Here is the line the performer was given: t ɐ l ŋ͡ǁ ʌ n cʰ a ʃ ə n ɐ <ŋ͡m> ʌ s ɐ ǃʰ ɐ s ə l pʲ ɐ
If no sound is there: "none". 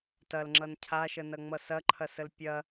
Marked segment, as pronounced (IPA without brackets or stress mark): ŋ͡m